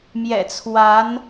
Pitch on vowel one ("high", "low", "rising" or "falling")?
low